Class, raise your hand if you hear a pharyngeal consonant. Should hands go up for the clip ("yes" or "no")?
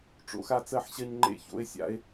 yes